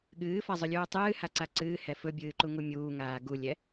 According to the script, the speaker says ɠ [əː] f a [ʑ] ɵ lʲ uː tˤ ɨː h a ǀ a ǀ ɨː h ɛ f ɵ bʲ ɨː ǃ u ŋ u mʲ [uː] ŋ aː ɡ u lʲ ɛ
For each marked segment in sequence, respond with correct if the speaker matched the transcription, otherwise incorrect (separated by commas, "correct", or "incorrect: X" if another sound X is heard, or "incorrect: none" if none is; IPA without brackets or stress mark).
incorrect: ɨː, incorrect: zˤ, correct